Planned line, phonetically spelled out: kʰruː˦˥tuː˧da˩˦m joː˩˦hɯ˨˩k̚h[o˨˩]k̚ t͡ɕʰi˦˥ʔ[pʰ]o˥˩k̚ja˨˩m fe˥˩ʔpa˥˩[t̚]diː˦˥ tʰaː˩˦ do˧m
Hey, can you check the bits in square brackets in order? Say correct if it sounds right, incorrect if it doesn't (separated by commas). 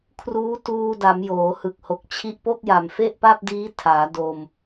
correct, incorrect, incorrect